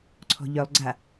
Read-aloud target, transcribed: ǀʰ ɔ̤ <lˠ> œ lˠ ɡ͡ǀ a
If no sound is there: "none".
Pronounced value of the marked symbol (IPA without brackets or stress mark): ʎ